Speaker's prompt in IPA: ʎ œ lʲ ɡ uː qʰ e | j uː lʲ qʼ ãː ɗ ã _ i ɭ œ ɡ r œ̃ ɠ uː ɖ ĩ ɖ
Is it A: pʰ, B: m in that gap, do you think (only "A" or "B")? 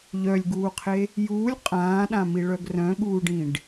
B